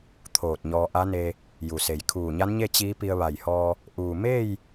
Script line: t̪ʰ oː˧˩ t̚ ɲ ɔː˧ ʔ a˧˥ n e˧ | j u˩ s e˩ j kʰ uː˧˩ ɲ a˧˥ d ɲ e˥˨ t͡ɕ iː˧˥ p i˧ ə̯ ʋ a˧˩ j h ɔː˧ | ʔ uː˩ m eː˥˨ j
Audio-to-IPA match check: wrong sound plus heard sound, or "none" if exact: d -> n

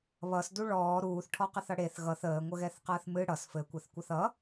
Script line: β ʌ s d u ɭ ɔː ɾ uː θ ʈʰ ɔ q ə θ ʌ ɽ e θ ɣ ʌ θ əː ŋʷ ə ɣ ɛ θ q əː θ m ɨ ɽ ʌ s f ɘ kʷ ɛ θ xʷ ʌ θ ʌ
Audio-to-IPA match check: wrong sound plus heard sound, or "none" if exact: xʷ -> kʷ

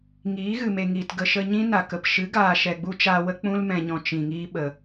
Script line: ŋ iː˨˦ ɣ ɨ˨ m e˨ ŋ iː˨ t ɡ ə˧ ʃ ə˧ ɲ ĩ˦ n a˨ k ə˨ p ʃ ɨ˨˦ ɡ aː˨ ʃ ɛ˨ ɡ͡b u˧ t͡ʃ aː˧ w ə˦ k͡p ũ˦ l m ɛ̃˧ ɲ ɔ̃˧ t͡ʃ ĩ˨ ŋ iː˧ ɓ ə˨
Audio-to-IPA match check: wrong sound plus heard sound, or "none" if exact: none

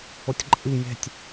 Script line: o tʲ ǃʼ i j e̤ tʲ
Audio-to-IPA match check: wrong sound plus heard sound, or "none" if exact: none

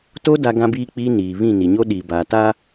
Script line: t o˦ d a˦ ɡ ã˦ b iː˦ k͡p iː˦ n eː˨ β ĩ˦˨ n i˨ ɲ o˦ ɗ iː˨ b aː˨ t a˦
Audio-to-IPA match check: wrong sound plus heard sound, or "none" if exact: eː˨ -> iː˨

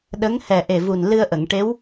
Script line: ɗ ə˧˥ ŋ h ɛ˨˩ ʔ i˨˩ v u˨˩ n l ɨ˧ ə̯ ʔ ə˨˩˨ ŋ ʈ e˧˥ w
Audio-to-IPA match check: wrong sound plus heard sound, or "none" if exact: i˨˩ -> e˨˩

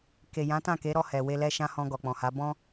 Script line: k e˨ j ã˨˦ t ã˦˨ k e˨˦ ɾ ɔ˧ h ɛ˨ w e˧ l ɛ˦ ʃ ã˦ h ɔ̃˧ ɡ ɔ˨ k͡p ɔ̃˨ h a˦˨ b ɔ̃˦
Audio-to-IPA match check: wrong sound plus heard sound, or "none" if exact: a˦˨ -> a˨˦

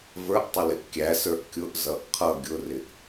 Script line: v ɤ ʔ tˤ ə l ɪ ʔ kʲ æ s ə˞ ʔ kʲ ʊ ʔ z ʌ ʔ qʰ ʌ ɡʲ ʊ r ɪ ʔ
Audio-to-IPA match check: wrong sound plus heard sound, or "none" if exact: ɤ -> ə˞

